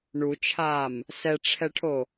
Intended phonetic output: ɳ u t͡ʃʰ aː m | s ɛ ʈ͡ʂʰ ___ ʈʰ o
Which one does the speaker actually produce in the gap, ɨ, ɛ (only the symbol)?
ɛ